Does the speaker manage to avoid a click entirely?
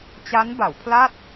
yes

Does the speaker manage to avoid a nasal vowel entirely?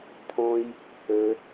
no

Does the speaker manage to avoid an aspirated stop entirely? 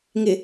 yes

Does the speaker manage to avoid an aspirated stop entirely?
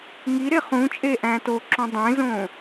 yes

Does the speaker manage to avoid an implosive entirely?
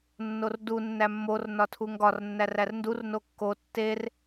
yes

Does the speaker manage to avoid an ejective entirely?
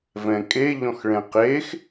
no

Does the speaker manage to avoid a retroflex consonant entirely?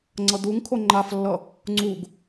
yes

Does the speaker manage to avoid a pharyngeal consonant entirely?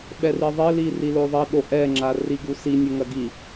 yes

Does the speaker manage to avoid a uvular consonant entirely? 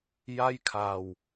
yes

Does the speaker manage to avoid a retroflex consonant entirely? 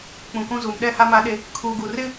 yes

